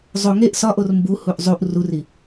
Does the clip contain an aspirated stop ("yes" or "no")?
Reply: no